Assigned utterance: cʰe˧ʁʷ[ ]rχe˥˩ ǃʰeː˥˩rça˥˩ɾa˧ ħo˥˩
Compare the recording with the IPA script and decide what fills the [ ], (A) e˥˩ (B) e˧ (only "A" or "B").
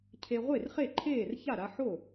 A